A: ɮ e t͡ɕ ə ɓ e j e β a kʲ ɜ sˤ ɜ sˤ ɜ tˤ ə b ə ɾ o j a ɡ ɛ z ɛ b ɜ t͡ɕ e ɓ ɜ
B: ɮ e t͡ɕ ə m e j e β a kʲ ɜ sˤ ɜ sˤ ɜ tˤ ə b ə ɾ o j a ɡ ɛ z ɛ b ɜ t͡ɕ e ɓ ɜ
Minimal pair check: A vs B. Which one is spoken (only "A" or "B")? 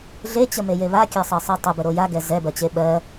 B